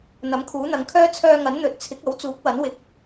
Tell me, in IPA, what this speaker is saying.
n̪ ɐ˨˥ m kʰ uː˨˥ n̪ ɐ˨˧ ŋ kʰ œː˥ t͡sʰ œː˧ ŋ ɐ˨˥ n n̪ ɵ˨˥ t̚ t͡sʰ ɪ˨˥ k̚ ɐ˨˥ w t͡s uː˨˥ k̚ w ɐ˨˥ n w ɪ˨˥ k̚

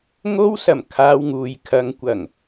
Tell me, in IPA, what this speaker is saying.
ŋ o˥ w s ɐ˨˩ m kʰ aː˧ w ŋ uː˨ j kʰ ɐ˨˧ ŋ kʷ ɐ˨˩ ŋ

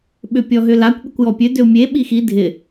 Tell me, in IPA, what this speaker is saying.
ɓ ʏ pʲ ɔ ɦ ʏ l a kʷ ɓ ʏ kʷ j ɔ pʲ ø d ʏ u̯ mʲ e ɓ i x i dʱ ɪ

